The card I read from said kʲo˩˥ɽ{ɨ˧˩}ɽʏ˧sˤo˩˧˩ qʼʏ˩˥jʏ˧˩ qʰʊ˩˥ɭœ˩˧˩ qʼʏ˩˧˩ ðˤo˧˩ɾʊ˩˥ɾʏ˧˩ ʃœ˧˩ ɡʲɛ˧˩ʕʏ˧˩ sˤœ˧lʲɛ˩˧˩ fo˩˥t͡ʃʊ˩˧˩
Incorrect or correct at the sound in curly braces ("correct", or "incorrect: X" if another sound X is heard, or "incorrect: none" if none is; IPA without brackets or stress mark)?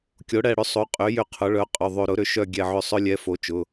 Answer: incorrect: ɛ˧˩